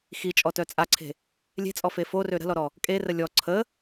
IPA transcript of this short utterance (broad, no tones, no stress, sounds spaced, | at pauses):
x i t͡ʃʼ ɔ t œ t͡sʼ a ǀʰ e̤ | lʲ e̤ t͡sʼ ɔ f e f o r ø ɾ ə̤ l ɔ ɾ ɔ | kʼ e r ə lʲ ɔ ǀʰ ə